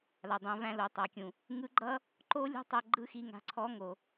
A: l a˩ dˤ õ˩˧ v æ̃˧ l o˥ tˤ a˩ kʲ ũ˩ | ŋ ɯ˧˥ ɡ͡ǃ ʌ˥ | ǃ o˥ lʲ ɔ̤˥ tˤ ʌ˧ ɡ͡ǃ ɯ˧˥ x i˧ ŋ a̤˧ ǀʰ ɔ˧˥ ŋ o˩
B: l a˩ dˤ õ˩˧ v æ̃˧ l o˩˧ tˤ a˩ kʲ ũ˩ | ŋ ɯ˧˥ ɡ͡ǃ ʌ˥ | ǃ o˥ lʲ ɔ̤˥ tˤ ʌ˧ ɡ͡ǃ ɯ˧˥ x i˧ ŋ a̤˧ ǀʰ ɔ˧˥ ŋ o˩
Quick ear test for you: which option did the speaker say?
B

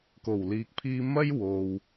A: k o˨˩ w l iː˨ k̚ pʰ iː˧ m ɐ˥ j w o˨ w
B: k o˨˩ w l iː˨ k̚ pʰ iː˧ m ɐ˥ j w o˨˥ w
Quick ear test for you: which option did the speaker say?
A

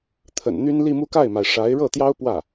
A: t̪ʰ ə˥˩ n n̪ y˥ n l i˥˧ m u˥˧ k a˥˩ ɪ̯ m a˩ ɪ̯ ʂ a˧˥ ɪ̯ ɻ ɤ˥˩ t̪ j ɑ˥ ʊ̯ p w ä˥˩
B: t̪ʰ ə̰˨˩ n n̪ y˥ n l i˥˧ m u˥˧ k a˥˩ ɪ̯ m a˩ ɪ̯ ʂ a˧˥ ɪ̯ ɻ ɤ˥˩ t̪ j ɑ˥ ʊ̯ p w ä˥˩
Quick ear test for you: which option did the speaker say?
B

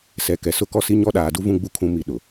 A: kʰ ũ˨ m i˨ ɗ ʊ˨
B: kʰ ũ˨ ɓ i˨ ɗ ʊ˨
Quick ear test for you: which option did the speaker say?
A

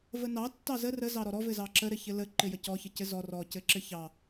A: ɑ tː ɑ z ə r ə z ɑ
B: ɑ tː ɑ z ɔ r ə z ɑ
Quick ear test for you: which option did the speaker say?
A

